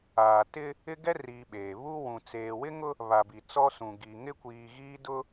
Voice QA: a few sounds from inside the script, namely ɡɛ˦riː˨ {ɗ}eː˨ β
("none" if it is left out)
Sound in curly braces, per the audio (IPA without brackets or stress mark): ɓ